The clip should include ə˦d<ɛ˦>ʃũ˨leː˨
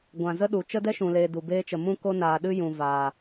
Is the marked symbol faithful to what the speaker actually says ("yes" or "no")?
yes